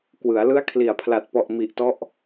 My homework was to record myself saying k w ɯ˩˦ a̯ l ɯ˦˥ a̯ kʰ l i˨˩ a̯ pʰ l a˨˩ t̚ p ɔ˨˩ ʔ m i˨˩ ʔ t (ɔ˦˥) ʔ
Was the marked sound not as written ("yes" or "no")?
no